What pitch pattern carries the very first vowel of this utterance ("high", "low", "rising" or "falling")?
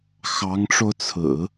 rising